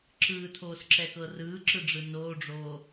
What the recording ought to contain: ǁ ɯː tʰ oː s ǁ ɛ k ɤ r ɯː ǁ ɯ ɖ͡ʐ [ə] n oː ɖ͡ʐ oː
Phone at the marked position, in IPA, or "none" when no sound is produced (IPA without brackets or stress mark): ɯ